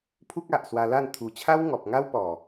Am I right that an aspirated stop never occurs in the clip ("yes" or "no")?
no